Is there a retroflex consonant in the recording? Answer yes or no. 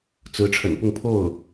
yes